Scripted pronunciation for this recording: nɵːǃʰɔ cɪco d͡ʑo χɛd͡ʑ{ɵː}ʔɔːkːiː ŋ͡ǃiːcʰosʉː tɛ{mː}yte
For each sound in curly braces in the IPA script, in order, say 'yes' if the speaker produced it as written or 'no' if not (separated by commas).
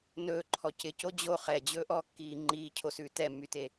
yes, yes